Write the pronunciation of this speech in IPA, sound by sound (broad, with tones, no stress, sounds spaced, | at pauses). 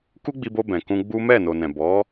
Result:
k u˦ ɡ͡b i˧ b o˧ b ɛ̃˨ k ũ˧ ɡ͡b u˦ m ɛ˦˨ n o˨ n ɛ̃˨ b ɔ˨˦